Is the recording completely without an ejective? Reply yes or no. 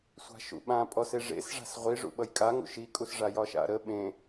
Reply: no